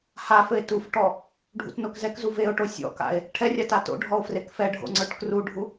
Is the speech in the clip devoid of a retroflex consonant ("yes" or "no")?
no